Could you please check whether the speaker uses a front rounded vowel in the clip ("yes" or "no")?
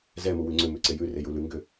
yes